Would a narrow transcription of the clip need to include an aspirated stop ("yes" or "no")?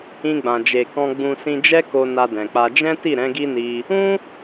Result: no